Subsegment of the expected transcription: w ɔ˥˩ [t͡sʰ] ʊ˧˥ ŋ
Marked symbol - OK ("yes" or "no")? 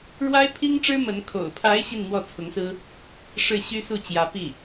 yes